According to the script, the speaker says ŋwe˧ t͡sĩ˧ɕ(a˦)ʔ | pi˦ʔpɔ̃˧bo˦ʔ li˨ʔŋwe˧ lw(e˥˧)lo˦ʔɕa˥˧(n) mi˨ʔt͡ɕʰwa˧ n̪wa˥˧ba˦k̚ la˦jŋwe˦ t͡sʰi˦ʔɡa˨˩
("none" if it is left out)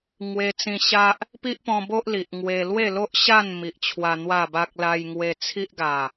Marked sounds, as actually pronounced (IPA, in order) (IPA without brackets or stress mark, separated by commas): a˦, e˥˧, n